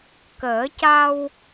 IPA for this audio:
k əː˨˩˦ c a˧ w

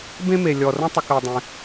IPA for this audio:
b ẽ˦ m e˨ lʲ ɔ˨ r ə̃˦ tˤ ə˧ k ɜ˧ dˤ ẽ˧

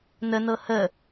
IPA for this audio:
n ə n ɤ h ə

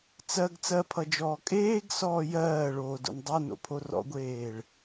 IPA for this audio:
t͡s ɜ ɡ t͡s ɜ pʰ ʌ d͡ʒ ɔː kʼ eː ɡ s ɔː j ɜː ɭ oː d o̰ n dˤ ɜ n o̰ pʰ o r ɔ̰ ɡʷ eː ɭ

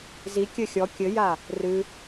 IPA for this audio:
z i kʲ ɘ xʲ ɔ kʲ ɘ j a | r ɨ

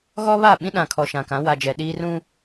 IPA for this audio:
ɣ ɔ˦ β a˦˨ ɓ ĩ˦ ɗ ã˨ kʰ ɔ˨ ʃ ã˨ k ã˨˦ w a˨ d͡ʒ ɛ˨ ɗ iː˦ r ũ˦

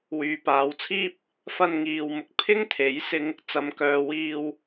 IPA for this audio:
w yː˨ p aː˨˧ w t͡sʰ iː˥ p̚ | f ɐ˧ n ŋ iː˨ w m ʊ˨ k̚ pʰ ɪ˥ ŋ t̪ʰ e˨˥ j s ɪ˧ ŋ | t͡s ɐ˨˧ m k œː˨ w iː˧ w

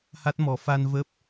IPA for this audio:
h a˦˥ t̚ m ɔ˨˦ f a˧ n v ə˦˥ p̚

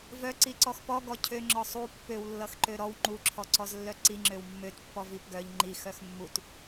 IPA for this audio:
v œ ǀ i ǀ ɔ x p ɔ ɡ ɔ cʰ ø ŋ͡ǁ ɔ sˤ u pː ø w lː ʌ x ǃ ø ɾ ɔ w ŋ͡ǃ u ǁʰ ɔ ǀ ɔ z lː œ ǀ i ŋ͡ǁ ø w mː ø t pː ɔ v i p ɡ œ ʎ ŋ͡ǃ i x œ x mː u t

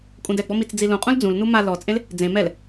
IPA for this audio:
kʼ ũ d ɛ ɡ͡b ɔ m i t͡s d͡z i l ũ qʼ ũ l d͡z ũ l n u m a l ɔ t͡sʼ ẽ l | d͡z ẽ m ɛ l

